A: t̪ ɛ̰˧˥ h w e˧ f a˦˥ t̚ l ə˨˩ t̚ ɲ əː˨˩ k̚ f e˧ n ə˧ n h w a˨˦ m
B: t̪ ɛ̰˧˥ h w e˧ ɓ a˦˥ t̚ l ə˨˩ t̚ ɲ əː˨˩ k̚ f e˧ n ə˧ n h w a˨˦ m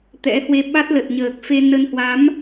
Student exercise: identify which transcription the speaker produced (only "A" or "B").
B